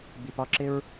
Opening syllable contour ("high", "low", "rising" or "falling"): low